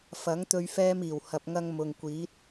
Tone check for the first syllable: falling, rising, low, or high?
rising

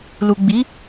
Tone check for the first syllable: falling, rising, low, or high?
low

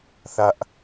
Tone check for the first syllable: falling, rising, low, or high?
high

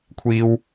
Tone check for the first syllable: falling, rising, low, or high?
high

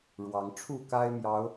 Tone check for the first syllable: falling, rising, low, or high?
rising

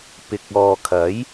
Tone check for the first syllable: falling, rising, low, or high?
low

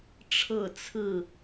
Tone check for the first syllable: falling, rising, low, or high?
falling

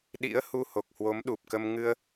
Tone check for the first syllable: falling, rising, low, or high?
rising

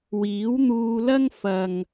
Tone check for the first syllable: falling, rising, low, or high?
rising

